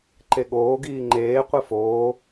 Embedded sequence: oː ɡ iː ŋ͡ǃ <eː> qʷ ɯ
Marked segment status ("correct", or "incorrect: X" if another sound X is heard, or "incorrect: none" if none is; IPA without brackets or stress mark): correct